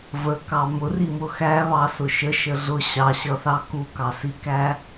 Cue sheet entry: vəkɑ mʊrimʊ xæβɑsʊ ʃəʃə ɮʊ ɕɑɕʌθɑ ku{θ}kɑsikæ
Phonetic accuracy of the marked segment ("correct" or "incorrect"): incorrect